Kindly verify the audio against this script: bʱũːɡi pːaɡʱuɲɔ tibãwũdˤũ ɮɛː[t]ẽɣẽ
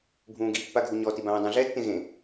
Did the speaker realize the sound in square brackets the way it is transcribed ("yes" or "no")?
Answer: no